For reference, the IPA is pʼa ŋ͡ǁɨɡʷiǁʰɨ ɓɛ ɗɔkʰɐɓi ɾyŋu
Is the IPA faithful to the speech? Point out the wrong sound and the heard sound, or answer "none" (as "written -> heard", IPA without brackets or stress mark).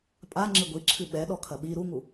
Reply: y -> u